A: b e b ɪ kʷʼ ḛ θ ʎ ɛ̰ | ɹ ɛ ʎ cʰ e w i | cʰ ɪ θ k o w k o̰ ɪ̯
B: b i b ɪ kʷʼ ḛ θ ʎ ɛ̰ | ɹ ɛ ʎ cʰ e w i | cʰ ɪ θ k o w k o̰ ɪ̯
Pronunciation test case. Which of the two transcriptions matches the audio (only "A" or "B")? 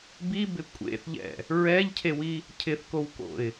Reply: B